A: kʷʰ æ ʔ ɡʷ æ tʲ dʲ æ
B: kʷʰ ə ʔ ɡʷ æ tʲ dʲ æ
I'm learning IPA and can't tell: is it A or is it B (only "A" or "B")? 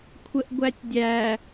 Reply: B